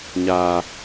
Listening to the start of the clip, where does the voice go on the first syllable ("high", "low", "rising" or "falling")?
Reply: low